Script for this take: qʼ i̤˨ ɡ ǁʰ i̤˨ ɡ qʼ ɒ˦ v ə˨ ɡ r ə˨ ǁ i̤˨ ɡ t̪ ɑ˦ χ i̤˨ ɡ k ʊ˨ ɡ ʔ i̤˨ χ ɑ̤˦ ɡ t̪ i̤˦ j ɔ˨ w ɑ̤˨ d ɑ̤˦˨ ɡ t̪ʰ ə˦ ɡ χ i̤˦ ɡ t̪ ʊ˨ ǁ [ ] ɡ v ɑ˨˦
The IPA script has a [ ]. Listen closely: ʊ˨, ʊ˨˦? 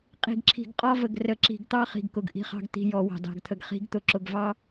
ʊ˨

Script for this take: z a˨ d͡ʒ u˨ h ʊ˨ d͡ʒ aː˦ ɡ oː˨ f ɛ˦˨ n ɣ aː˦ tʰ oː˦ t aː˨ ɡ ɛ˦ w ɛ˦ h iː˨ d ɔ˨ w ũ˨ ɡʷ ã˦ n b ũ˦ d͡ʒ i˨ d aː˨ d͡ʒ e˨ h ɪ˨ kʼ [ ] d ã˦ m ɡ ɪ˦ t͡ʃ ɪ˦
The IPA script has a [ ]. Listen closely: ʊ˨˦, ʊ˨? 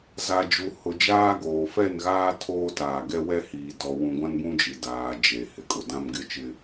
ʊ˨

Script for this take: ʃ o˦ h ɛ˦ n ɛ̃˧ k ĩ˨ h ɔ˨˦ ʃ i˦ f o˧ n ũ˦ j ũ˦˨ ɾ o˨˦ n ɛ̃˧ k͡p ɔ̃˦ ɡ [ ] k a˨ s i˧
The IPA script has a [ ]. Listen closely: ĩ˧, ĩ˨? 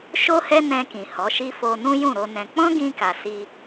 ĩ˧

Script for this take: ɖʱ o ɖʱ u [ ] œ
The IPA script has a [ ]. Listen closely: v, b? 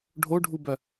b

